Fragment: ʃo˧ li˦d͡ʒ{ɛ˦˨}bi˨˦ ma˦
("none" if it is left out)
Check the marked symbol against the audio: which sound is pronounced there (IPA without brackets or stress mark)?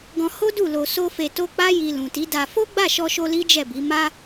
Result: ɛ˦˨